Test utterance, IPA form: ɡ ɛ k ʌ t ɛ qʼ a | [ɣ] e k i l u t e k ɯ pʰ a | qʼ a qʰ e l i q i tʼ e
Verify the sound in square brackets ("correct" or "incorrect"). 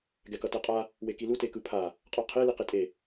incorrect